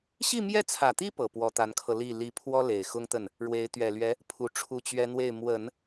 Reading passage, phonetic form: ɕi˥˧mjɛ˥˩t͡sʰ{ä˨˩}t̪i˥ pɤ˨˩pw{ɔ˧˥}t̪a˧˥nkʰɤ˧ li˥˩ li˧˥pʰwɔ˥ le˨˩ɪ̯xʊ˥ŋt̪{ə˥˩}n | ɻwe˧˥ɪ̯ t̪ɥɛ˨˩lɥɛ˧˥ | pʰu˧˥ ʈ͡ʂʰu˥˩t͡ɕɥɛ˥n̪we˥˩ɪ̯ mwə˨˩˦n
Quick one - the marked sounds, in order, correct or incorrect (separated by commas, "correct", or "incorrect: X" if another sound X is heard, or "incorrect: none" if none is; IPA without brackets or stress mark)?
correct, correct, correct